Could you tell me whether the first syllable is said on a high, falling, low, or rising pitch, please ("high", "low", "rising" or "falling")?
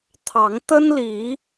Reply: rising